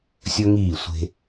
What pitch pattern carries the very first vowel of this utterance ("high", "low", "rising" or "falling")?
high